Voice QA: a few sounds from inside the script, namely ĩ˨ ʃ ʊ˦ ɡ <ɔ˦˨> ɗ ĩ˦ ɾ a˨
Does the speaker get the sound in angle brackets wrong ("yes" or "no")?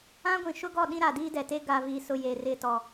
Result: no